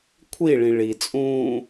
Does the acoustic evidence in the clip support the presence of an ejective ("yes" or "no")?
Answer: yes